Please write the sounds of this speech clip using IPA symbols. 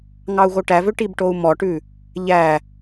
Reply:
ŋɑu̯ɣoʈævø ʈibʈou̯mɔʈʉ | ʎæ

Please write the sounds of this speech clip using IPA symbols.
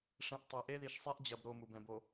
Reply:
ʂɛ̃˨ʔ tˤɘ˨ ʔe˦ði˨ʃsˤe˦ʔ d͡ʑɐ˨b ɾo˦˨mu˨bɛ̃˨b o˨

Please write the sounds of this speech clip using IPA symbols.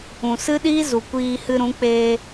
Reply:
ũ˨sɨ˦ɗiː˦zu˨ kʷiː˧hɨ˧ɾũ˨˦ k͡peː˧

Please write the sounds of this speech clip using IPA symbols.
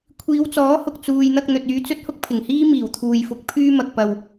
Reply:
kʷʰiː˨˧wt͡sɔː˨˥hʊ˨k̚ t͡suː˨jn̪ɐ˧k̚ n̪ɵ˨t̚yː˧t͡sɵ˥t̚hʊ˥k̚ pʰɪ˨˩ŋhiː˥ miː˨˩wt̪ʰuː˨jfʊ˨˥k̚ pʰyː˥mɐ˧k̚pɐ˧w

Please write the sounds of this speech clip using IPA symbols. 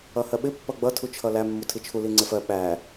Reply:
ʌhɜɓɪ pːʌɡ͡bʌ tʰut͡ʃʰʌlæ mːutʰit͡ʃʰu liŋ͡ǀɪfɜ ɓæ

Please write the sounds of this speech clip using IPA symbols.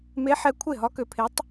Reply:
me˧˥ħɛ˧ kʷʰe˥˩ɦɒ˧˥kø˧pʰe˧˥tˤ

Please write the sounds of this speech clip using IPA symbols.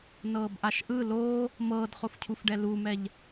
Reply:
nɤːbʔaʃʔɯ loː | mɤːdχofcʰufɖɛ lumɛʎ

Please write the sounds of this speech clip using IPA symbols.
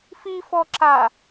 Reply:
fifɔǁa

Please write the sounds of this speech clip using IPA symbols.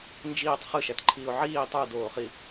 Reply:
nd͡ʒiːtˤ χɯʃætǃʰiːʊ̯ ʕiː tˤudoːχi

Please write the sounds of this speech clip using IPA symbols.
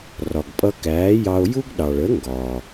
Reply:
rɒ˩ɡpʼʌ˧kæː˩˥jɑ˧o̯ ju˥ɡɗɑ˩ɭ ə˩˥ŋɡɒ˩

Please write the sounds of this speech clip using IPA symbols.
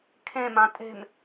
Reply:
kʰẽmã tʼe̤m

